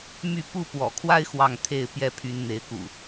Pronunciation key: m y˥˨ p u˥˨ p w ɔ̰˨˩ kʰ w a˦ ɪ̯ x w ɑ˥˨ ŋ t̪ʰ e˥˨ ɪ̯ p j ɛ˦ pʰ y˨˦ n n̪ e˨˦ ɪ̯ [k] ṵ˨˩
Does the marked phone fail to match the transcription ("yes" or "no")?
no